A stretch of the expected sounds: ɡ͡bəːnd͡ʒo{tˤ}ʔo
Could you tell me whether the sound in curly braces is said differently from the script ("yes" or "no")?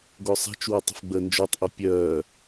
no